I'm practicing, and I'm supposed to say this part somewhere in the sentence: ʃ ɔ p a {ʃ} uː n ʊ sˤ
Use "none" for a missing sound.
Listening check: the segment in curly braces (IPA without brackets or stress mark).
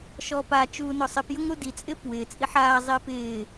t͡ʃ